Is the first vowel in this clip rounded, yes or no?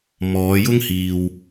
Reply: yes